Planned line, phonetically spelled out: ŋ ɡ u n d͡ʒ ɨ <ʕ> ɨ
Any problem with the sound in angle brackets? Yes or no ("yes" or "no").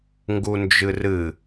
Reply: yes